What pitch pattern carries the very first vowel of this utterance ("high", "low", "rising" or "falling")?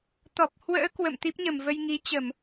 low